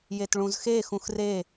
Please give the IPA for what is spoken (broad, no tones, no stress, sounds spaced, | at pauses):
j e t ɭ ũ z x e x ũ x r e